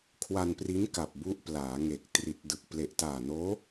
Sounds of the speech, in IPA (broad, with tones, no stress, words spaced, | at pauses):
kʰwa˧npri˦˥nka˨˩p̚ bu˦˥ʔplaː˩˦ŋe˨˩k̚ tri˨˩t̚dɯ˨˩k̚ ple˨˩ʔtaː˨˩noː˦˥